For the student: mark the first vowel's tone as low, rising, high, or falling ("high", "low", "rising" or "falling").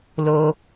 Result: high